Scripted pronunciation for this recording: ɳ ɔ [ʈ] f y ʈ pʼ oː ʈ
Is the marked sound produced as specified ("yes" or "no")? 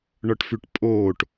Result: yes